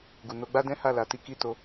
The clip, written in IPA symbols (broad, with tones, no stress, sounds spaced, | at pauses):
ɡ u˨ n o˧ ɡ͡b a˦ d ɛ̃˦ h a˦˨ l a˧ t i˦ k i˦˨ t o˧